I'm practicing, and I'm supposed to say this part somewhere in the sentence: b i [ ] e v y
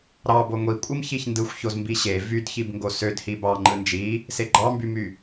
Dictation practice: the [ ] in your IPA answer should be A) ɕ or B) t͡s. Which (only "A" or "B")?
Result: A